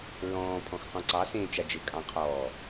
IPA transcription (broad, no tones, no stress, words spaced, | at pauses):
ɹɔ̃ː pʰɔ̃xqɔ̃ǀɑ sẽːt͡ʃad͡ʒɘ kʼɑ̃qʰɔː